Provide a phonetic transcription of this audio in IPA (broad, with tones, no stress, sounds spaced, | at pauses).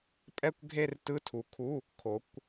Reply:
pʼ ɛ˥˧ kʷ ɡʱ e˥˧ r t ɯ˧˥˧ tʰ u˨˦ kʰ u˧˥˧ | kʰ o˨˦ kʷ